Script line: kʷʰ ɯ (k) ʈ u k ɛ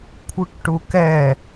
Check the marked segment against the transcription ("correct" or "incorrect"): correct